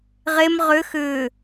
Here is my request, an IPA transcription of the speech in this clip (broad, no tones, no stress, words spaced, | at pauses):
ʁem ʁʏ xʏː